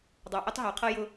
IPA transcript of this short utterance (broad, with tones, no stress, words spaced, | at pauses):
dˤɑ˨ʔʌ˦tˤɦɑ˨qʰʌ˦ jʊ˦